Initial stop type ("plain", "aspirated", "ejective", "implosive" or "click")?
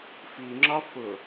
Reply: click